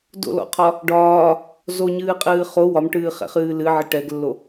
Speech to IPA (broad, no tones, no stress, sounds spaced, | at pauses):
d o̰ l ɔ̰ qʰ ɒ | ɖ ɒː | z o ɲ ɨː qʼ ɨː χ o w ɒ m ʈ ɨː χ ɛ̰ χ ɨː l ɨ ʕ ɪ ʈ ɛ ɡ lː o